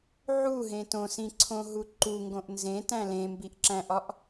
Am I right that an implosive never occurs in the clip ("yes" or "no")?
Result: yes